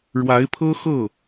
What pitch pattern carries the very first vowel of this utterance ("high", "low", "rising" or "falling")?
rising